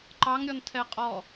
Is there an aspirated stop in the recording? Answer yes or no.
yes